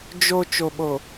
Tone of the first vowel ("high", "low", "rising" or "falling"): low